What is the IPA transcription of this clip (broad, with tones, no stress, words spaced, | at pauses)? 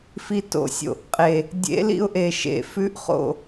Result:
fi˧to̰˨˩˦ sʲo̰˨˩˦ʔqʼe˨˩ | dʲḛ˧˥lḭ˥˧ʊ̯ ʔe˨˩ʃḛ˨˩ fʉ˧˥ʔχo̰˨˩